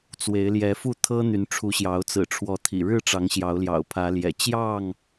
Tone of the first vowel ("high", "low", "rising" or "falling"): rising